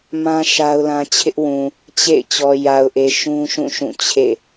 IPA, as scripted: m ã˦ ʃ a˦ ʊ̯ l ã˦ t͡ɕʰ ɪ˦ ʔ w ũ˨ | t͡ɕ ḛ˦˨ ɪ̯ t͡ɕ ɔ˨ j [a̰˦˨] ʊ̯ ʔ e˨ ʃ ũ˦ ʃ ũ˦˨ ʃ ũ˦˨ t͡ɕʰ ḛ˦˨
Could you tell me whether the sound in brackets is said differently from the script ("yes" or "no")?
yes